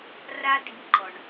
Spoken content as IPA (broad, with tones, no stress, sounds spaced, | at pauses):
r a˥ d i˧˥ ǃ ɔ˧ ɳ